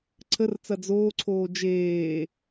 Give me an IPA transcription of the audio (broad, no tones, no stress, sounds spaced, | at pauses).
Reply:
ǀʰ ə r t͡s ɐ d͡z oː ǀʰ oː d͡ʒ eː